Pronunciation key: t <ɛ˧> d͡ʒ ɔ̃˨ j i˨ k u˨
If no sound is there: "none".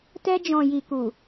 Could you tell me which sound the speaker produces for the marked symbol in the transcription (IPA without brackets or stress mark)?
ɛ˧